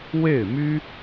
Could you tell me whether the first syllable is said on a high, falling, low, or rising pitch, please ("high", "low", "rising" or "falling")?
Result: falling